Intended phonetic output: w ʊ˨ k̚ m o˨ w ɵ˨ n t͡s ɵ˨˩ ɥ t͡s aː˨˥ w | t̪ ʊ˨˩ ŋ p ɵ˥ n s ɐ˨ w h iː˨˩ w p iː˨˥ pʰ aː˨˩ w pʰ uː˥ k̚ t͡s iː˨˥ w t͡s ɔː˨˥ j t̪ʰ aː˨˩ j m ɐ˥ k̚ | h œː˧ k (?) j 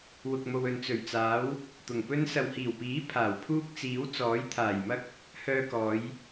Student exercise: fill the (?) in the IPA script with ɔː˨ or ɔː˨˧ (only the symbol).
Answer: ɔː˨˧